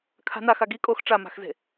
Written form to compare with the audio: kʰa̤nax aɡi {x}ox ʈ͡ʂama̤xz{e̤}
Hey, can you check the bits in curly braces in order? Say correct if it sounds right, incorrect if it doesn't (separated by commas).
incorrect, correct